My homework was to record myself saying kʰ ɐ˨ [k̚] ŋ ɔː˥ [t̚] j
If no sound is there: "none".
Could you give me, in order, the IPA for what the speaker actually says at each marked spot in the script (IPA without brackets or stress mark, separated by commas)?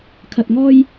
t̚, none